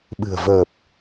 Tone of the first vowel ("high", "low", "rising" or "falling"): low